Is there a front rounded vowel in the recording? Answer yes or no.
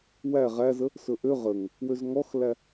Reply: yes